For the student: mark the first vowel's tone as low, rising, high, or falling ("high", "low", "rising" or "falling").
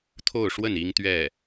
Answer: falling